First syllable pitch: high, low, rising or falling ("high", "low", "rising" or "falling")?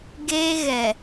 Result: high